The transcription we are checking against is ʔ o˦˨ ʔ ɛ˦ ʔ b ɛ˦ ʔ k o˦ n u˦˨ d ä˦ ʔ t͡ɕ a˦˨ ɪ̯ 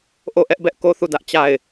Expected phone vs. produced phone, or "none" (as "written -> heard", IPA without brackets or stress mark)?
n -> θ